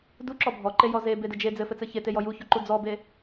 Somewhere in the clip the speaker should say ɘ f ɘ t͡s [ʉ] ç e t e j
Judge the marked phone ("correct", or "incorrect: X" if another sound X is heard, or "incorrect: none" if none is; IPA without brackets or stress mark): incorrect: ɘ